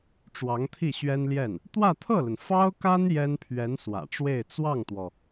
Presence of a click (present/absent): absent